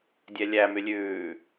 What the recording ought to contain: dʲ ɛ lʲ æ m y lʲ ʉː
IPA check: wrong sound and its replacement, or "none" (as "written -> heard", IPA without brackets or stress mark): none